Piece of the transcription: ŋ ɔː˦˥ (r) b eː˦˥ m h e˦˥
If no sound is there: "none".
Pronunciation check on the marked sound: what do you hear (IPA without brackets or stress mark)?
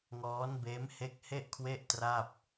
n